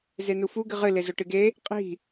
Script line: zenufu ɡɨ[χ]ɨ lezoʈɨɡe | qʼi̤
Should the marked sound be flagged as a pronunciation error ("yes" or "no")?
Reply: yes